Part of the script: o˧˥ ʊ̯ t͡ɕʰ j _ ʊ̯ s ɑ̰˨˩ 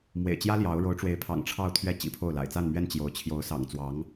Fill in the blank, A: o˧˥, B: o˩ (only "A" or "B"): A